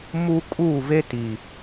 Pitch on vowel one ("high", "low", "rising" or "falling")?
high